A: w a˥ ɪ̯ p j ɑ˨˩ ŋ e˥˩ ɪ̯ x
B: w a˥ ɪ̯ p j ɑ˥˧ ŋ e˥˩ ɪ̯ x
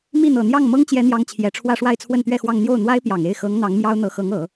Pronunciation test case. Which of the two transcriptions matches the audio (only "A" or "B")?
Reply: A